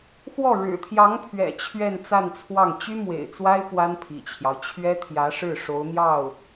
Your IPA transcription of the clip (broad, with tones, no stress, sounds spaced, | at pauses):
x w ɔ˥˩ ɻ ɻ̩˨˩ t̪ʰ j ɑ˧˥ ŋ pʰ ɥ ɛ̰˨˩ t͡ɕʰ ɥ ɛ˥˧ n t͡s a˥˧ n t͡sʰ w ɑ˥˩ ŋ t͡ɕ y˥ m w ḛ˨˩ ɪ̯ t͡s w a˥ ɪ̯ p w a˥ n pʰ ḭ˨˩ t͡ɕʰ j ɑ˦ ʊ̯ t͡ɕʰ ɥ ɛ˥ t̪ʰ j ä˧˥ ʂ ɻ̩˥˩ ʂ o˧˥ ʊ̯ n̪ j ɑ˥˩ ʊ̯